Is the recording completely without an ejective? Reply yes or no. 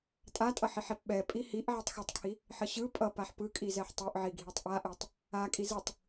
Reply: no